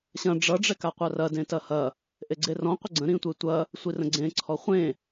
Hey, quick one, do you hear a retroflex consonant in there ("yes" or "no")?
yes